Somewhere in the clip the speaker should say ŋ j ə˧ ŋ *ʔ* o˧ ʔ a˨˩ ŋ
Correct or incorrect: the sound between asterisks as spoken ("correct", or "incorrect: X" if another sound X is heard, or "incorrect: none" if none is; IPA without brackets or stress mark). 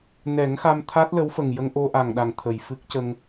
correct